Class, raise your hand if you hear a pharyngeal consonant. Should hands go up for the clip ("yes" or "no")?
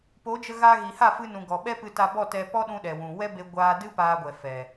no